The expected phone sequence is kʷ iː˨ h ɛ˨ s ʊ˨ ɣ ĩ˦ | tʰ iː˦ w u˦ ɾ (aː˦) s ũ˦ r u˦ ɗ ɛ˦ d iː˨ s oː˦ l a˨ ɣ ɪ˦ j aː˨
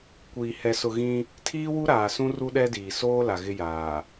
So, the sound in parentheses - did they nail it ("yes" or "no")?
no